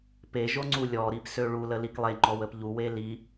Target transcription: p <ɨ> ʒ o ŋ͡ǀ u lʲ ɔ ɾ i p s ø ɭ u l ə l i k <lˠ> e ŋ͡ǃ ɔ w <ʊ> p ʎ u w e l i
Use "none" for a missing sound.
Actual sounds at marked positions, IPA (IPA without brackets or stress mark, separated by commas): e, lˠ, ə